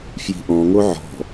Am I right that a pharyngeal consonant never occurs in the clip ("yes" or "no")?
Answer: no